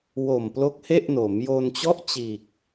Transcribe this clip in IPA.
w o˨˩ m p l o˦˥ k̚ h e˥˩ ʔ n o˩˦ m j o˧ n t͡ɕ ɔ˥˩ ʔ t͡ɕ iː˨˩ k̚

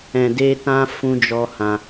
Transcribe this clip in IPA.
ɛ̃˨ d e˧ t ã˦ f ũ˦ d͡ʒ ɔ˦ h ã˧

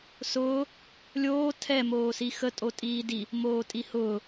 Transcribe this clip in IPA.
s ʊː | lʲ oː tʰ ɛ m oː s i x ə tʼ o tʼ iː d i | m oː tʼ i h ʊː

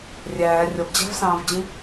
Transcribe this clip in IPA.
rʲ æː rʲ ʌ b d͡ʑ æ̤ v s ɑ̃ː v d͡ʑ ĩ

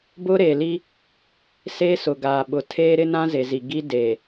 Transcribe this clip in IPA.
b ʊ˦ ɾ e˨ l i˦ | s eː˦ s ʊ˨ ɡ aː˨ ɓ ʊ˨ tʰ eː˦ ɾ ɪ˦ n ã˦ z e˨ z i˨ ɡ i˦ d eː˨

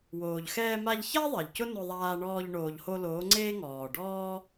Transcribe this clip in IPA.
w oː˨ ʎ x ɛː˧ m a˧ ʎ ç a˦ ðˤ ɛ˨ ʎ c ʊ˦ n ʊ˧ ðˤ aː˧ ɳ ɔː˧ ʎ ɳ oː˨ ʎ h o˧ l oː˨˦ ŋ͡ǀ eː˦ ŋ ɔː˨ ɖ ɔː˦

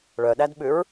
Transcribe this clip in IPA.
ɭ œ ɗ æ d ɓ ʉ ɹ

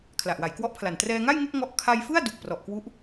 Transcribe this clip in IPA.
kʰ l a˨˩ ʔ w a˩˦ j k w ɔ˦˥ ʔ pʰ l a˨˩ n t r ɛː˧ ŋ a˥˩ j ŋ e˥˩ k̚ ŋ ɔ˦˥ ʔ kʰ a˧ j f ɯ˥˩ a̯ d u˨˩ k̚ p r ɔ˨˩ ʔ k w u˦˥ ʔ

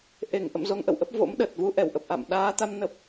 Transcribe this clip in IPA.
ʔ e˧˩ ŋ ʔ ə̰˧˨ m z o˧ ŋ ʔ ə̰˧˨ w ʔ ə˦˥ p̚ v o̰˧˥ m ɗ ə˨˩ t̚ v u˧ ʔ ɛ˧˩ w ʔ ə˨˩ p̚ ʔ a̰˧˨ m ɗ aː˨˦ t̪ a˨˦ m n ə˨˩ p̚

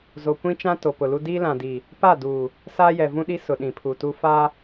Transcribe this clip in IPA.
z o˨ kʷ ĩ˦ t͡ʃ ã˦ t o˨ p ʊ˨ l u˦ d iː˦ l ã˨ d i˨ | p a˦˨ d uː˨ | s aː˦ j ɛ˨ v ũ˦ ɗ i˦ s ʊ˨ ɗ ĩ˨ pʰ u˨ t u˦ f a˦

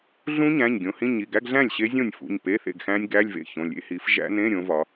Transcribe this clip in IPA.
ɮ ũ˦˥ ɲ æ̃˩˧˩ ɲ ɡʲ õ˨˦ h ĩ˧˥˧ ɲ i˩˧˩ ɡ æ˧˥˧ ɡ ɮ æ̃˥˩ lʲ ɕ e˦˥ zʲ õ˥˩ nʲ f ṵ˩˧˩ ɲ p e˧˥˧ θ ḛ˥˩ ɡ x æ̃˦˥ nʲ ɡ æ˧˥˧ lʲ v ḛ˥˩ ç õ˩˧˩ lʲ ḛ˧˥˧ h i˨˦ f ʒ æ̰˦˥ n ẽ˧˥˧ ɾʲ õ˨˦ v ɒ˨˦

